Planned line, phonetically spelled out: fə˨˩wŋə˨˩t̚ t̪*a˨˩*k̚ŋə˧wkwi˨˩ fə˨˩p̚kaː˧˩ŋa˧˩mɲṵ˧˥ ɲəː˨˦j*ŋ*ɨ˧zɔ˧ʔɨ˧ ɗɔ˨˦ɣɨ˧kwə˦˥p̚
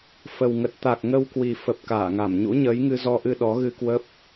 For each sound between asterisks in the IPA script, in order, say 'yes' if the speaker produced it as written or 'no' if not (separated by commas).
yes, yes